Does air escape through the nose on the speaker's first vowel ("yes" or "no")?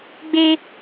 no